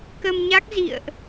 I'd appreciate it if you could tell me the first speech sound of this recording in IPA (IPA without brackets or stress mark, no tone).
k